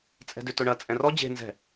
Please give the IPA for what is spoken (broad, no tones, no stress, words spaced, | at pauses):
t͡sʼɛ̤dʏtʊɳɐ t͡sʼɛ̃rɔ d͡ʑe̤ nzɛ̤